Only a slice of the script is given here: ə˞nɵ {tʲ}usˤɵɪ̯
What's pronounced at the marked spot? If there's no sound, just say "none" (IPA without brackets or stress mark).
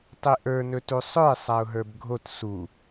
t